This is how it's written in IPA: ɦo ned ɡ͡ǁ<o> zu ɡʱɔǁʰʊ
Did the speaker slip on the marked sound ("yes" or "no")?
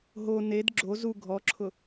no